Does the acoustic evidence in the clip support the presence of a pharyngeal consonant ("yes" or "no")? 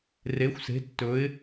no